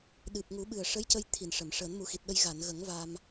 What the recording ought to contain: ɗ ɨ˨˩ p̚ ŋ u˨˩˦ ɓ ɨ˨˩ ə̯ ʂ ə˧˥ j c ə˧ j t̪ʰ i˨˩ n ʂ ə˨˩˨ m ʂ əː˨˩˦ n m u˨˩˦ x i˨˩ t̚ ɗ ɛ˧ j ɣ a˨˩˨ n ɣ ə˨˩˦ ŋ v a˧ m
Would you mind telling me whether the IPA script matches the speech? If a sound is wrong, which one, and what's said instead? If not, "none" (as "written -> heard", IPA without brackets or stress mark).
ɛ˧ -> ə˧